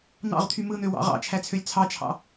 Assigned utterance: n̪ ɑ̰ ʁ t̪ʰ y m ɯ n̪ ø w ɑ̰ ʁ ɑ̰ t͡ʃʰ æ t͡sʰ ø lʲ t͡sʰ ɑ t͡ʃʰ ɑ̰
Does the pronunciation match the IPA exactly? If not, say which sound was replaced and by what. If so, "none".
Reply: none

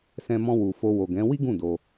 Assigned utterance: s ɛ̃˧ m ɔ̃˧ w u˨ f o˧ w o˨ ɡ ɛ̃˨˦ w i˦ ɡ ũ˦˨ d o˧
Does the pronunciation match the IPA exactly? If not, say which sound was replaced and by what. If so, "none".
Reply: none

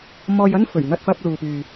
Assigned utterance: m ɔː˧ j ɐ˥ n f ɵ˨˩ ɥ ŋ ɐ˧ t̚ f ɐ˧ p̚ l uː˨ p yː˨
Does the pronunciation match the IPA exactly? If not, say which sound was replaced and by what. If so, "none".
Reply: none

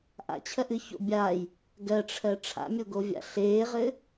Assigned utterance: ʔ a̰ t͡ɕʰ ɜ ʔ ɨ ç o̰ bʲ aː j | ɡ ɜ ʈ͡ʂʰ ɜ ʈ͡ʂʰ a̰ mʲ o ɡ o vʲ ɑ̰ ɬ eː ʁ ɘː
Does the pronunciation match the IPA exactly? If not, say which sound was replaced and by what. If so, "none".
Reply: ɑ̰ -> a̰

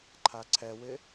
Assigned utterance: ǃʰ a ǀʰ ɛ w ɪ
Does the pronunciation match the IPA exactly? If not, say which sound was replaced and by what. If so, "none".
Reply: none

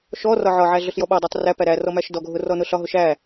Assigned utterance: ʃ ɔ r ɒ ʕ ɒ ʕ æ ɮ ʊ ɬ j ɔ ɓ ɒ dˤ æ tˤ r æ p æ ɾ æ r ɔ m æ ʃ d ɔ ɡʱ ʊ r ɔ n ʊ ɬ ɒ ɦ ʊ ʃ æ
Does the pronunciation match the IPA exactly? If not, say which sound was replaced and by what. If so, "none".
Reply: none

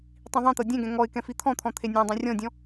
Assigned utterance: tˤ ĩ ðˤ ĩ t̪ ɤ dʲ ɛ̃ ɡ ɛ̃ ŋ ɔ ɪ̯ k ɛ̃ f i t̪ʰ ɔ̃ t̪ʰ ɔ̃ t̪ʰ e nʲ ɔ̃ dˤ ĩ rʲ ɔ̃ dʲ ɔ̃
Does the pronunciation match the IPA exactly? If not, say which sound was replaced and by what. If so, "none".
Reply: none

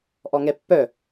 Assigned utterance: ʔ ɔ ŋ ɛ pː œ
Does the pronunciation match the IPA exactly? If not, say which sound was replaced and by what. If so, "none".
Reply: none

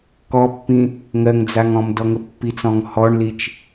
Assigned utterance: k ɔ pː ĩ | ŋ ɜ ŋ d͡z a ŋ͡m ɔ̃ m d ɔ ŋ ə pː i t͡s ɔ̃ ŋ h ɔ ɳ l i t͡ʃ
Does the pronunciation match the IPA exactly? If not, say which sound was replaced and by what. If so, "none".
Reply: ŋ͡m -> ŋ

